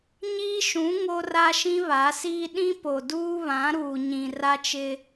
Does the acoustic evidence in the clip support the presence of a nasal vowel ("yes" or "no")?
yes